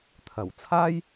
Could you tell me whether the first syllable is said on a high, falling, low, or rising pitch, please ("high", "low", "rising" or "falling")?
low